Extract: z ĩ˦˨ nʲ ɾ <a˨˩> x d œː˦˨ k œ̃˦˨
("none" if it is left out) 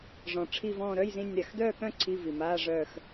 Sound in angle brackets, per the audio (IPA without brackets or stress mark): a˨˩